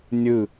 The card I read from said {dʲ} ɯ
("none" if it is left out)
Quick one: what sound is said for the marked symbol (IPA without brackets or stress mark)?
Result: nʲ